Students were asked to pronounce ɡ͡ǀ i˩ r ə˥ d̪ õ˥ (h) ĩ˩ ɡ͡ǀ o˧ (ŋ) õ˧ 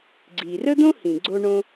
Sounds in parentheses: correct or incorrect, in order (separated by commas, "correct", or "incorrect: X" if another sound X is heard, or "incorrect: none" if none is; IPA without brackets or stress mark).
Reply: correct, incorrect: ɳ